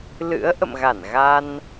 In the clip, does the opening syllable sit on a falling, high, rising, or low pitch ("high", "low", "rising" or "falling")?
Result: rising